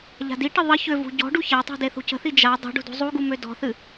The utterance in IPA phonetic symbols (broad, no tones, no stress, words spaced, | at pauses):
ʎa̤diʈə ðˤə çøvṳ ɟɔ̤ɖu çatˤṳ deθṳcə̤θi d͡ʒa dˤṳɖṳ dṳzˤuɡu mødɔ̤θɨ